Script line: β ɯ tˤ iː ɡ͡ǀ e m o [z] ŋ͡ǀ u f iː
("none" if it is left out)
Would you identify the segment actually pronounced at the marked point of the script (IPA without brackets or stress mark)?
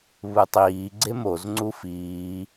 z